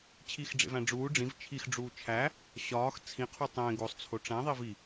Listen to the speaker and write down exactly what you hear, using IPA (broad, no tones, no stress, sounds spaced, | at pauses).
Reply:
t͡ɕʰ i x ɖ͡ʐ ḛ v æ̃ ɖ͡ʐ uː ɖ͡ʐ ĩ v t͡ʃʰ i x ɖ͡ʐ uː t͡ʃʰ æ | ɕ ɒː x t͡sʰ ĩ qʰ u tˤ ẽ ɡ o sˤ t͡sʰ o ʈ͡ʂ æ̃ ðˤ i v i